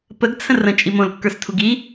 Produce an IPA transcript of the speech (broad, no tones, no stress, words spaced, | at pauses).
pəɡt͡sʰə̃r ə̃t͡ʃʼi mõlkːə˞stʰuɡ i